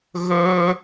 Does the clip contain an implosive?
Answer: no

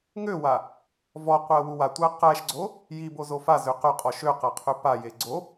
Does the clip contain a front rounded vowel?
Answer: yes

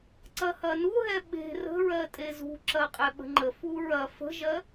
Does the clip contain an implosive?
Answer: yes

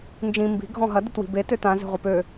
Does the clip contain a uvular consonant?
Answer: yes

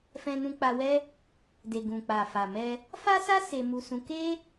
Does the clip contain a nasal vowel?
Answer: yes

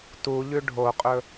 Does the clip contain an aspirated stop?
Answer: no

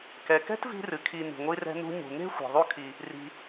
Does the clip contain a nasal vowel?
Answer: no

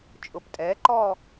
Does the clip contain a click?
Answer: yes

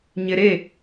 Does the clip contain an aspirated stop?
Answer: no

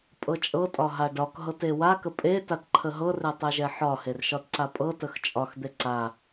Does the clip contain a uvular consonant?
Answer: no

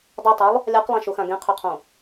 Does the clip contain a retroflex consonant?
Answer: no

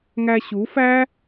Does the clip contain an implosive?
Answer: no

